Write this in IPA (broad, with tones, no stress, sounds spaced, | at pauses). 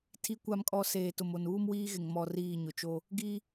tʰ i˨ kʷ a˨ m kʼ ɔ˨ s eː˨ t ʊ˨ m o˨ n uː˦ m w iː˦ ɣ ɪ˨ ŋ m ɔ˨ r iː˦˨ ɲ ʊ˨ t͡ʃ o˦ | ɡ i˦